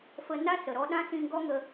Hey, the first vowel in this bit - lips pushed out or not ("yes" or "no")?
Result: no